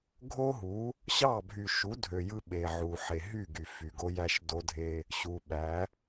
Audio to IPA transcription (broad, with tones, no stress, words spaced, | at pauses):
ɡʱo˦ɦu˨˦ | ɕɑ˦˨ bʱy˨ʃu˨˦dʱø˨ jɯ˦ɓe˨ʕu˨ ħe˨ɦy˦˨ɡy˨ fy˨ɡo˦jæ˦ʃ do˦dʱe˦ | ɕu˨ ɓæ˨˦